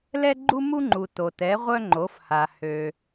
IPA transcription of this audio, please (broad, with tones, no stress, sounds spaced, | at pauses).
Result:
l ɛ˧ ɡ͡ǃ u˧ m u˧ ŋ͡ǃ u˩ t o˩ t ɛ˩˧ ʁʷ œ˧ ŋ͡ǃ o˩˧ f h a˩ h ø˩